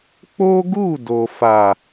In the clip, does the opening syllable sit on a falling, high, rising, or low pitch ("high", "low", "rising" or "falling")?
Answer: high